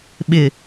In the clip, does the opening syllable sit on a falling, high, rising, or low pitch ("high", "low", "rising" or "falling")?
low